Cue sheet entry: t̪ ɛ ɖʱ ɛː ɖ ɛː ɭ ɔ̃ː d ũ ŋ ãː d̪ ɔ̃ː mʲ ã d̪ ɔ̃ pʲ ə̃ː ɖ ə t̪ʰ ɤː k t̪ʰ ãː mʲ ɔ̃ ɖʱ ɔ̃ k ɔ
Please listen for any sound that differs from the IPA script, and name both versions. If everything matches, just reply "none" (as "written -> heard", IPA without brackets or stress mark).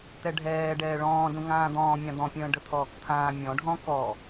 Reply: ɤː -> ɔː